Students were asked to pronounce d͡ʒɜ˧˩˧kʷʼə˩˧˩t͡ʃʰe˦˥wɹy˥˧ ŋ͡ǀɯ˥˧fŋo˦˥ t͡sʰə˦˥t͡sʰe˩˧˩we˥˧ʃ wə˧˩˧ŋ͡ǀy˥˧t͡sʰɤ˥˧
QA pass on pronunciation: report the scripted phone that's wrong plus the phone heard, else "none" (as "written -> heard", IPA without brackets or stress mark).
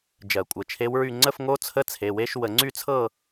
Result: ɯ˥˧ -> ə˥˧